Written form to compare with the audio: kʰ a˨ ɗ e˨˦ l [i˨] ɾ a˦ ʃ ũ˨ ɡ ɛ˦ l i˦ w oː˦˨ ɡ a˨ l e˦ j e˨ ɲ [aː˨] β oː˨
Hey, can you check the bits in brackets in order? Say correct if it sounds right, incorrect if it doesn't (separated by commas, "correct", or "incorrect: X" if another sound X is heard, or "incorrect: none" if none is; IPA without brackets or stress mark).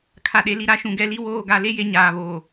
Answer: correct, correct